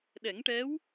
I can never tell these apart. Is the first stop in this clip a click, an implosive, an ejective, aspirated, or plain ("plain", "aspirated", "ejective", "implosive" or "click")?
implosive